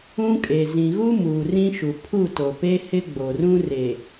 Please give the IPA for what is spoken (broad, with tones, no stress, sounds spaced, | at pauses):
ũ˦ kʼ e˨ z ĩ˨ ɣ u˦ m uː˨ r ĩ˦ ʃ u˨ pʰ u˦˨ t o˨ p e˦ h ɪ˦ ɡ͡b o˨ r ũ˦ r e˨